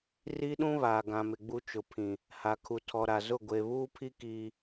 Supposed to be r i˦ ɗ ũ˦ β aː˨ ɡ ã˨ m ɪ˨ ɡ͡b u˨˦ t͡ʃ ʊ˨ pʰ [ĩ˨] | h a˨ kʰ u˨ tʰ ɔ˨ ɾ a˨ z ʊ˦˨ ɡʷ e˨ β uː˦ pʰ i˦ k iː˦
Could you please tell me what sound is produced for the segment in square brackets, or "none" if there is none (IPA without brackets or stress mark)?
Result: ĩ˨